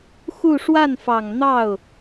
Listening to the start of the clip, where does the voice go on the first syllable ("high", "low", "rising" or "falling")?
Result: falling